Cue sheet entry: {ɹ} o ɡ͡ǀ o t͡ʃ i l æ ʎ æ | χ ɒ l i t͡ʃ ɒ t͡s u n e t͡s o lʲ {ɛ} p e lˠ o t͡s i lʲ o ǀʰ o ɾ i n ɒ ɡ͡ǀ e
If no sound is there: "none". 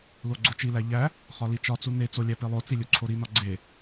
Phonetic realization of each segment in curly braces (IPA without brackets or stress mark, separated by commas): l, æ